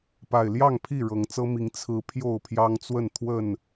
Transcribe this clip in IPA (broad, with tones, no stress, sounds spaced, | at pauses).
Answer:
p a˨˩ ɪ̯ l j ɑ˥˨ ŋ pʰ i˥˨ ɻ ɤ˨˩ ŋ t͡s ɤ˦ m i˨˦ ŋ t͡sʰ ɹ̩˨˦ pʰ j o˥˨ ʊ̯ pʰ j ɑ˦ ŋ t͡s w ə˥˨ n t̪ʰ w ə˥˨ n